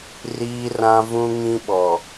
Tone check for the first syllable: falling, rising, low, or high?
high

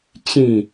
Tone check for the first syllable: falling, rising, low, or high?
falling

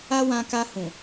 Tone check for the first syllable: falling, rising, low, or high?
high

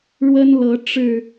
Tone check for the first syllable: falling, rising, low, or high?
high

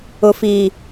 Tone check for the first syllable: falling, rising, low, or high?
low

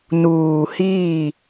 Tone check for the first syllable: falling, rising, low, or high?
low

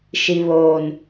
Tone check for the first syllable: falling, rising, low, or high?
low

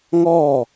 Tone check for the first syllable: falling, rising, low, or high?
falling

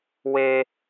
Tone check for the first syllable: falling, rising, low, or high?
high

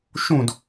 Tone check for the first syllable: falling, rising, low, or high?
falling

